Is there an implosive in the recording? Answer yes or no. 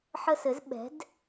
yes